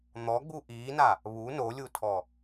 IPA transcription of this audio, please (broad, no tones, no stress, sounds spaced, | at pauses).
n̪ ɔ ɡ͡b u ʔ iː n a | β u n o lʲ u tʰ ɔ